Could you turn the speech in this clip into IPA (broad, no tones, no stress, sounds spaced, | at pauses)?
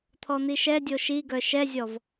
t̪ʰ ɔ n̪ i ʃ ɛ dʲ o ʃ i ɡ œ ʃ ɛ zʲ ɔ v